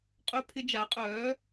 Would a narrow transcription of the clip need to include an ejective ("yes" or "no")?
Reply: yes